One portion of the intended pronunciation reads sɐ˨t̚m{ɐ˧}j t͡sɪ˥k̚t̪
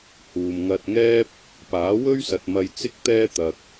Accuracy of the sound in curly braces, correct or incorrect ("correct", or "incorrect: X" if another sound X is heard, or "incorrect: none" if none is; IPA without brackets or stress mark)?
correct